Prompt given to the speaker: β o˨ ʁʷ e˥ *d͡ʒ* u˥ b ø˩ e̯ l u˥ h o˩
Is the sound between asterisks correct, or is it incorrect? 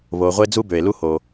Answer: incorrect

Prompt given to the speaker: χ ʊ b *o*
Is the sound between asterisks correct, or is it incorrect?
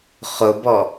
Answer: incorrect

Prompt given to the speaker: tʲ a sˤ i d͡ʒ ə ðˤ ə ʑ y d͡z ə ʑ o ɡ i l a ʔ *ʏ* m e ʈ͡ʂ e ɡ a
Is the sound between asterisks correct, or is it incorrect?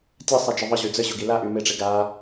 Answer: incorrect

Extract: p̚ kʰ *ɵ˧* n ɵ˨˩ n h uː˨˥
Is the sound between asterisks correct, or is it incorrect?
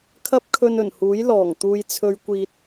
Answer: correct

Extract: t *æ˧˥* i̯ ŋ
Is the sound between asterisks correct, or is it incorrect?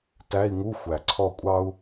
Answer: incorrect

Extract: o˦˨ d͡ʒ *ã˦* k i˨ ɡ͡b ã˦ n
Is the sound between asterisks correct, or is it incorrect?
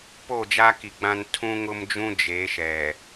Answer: incorrect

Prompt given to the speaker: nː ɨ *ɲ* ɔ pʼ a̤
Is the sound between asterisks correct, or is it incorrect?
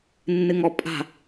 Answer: incorrect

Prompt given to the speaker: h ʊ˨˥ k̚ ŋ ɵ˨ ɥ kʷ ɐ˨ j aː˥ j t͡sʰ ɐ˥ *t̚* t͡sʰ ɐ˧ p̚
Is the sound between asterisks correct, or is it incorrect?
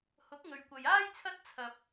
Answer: correct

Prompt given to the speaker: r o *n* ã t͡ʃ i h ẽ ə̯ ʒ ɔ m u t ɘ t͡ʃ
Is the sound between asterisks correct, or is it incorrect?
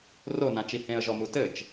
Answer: correct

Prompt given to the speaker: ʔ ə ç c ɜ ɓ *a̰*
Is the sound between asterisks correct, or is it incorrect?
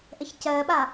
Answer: incorrect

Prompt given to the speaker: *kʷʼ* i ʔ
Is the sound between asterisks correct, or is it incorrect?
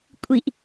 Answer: correct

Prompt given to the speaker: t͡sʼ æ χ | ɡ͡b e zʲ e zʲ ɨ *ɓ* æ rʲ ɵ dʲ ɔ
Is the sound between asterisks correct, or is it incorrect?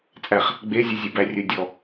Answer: incorrect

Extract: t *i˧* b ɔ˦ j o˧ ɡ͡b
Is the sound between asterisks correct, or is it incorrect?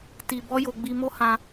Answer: correct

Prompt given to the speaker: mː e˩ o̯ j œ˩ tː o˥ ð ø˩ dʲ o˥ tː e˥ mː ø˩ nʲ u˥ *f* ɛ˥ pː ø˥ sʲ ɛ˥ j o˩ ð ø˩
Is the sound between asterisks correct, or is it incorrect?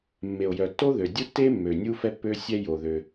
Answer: correct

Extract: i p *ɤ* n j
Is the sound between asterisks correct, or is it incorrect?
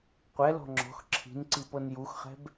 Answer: correct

